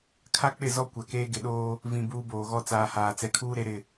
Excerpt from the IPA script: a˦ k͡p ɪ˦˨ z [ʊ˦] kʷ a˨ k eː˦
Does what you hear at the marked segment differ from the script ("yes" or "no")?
yes